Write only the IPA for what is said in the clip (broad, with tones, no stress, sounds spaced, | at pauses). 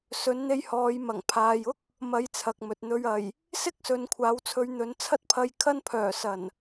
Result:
s ɵ˨˥ n n̪ e˧ j h ɔː˨˧ j m ɐ˨˩ ŋ pʰ aː˨ j ʊ˥ k̚ | m ɐ˧ j t͡sʰ ɐ˨ k̚ m ɵ˨ t̚ n̪ ɵ˨ ɥ ɐ˨˩ j | s ɪ˥ k̚ s ɵ˨ n kʷʰ aː˨˥ w t͡sʰ ɵ˧ ɥ n̪ ɵ˨˧ n t͡sʰ ɐ˥ t̚ pʰ ɐ˧ j kʰ ɐ˥ n pʰ œː˨˩ s ɐ˨˩ n